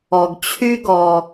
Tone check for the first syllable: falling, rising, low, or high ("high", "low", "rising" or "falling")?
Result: low